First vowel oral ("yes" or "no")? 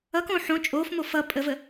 yes